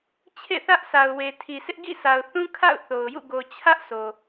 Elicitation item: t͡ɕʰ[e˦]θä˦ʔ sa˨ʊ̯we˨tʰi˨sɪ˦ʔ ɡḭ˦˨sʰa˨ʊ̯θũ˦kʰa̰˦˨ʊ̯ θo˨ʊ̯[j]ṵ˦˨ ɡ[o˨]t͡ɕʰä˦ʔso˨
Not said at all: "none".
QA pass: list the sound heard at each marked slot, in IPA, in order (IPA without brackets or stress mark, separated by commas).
ḛ˦˨, j, o˨